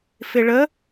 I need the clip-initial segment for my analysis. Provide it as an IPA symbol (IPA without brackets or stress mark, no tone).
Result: f